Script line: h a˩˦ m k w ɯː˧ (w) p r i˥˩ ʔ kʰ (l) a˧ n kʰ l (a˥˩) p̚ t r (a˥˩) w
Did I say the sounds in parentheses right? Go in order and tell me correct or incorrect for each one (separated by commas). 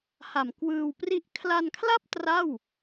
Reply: correct, correct, correct, correct